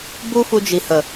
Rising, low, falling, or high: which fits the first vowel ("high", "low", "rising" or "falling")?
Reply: high